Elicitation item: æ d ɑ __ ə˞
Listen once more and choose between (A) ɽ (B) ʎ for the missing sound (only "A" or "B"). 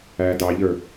B